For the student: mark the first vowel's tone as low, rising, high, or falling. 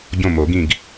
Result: falling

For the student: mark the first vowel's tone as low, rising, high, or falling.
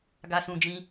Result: high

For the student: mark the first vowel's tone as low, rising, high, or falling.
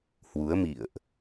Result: rising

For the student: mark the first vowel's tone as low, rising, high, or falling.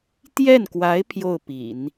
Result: falling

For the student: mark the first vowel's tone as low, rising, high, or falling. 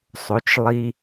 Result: rising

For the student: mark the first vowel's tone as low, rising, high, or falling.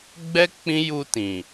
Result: high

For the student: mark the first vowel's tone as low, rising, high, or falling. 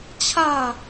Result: falling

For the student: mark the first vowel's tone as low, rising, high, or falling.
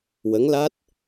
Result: rising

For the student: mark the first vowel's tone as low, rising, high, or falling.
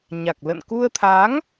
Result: low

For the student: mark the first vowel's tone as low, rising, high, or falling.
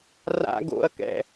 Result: high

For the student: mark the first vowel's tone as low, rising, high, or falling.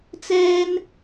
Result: high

